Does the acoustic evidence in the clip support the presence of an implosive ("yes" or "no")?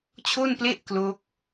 no